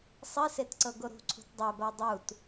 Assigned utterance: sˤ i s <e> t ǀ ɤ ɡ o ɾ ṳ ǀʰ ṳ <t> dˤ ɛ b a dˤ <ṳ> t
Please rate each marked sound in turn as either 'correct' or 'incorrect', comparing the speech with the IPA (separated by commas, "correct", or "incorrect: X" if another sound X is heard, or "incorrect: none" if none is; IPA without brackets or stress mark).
correct, correct, incorrect: u